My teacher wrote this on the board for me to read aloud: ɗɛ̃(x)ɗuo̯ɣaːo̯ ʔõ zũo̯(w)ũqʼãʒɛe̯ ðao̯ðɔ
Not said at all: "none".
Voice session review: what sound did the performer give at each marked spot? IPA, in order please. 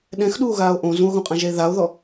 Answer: x, ɣ

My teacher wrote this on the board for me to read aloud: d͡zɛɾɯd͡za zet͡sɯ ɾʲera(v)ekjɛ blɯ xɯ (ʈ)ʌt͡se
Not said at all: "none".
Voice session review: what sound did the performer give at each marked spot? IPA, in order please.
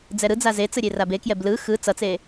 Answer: b, t͡s

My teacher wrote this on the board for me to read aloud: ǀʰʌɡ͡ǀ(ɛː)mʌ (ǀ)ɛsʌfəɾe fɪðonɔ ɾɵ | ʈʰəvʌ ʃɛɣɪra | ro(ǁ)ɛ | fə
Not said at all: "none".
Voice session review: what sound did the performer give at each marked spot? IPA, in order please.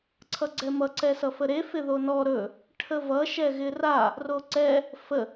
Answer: ɛ, ǀ, ǀ

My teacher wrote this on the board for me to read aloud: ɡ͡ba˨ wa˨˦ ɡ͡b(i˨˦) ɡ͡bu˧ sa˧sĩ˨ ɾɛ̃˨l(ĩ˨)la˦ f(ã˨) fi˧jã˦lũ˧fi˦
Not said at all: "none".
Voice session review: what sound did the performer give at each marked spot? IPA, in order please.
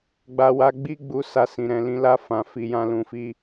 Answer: i˧, ĩ˨˦, ã˧

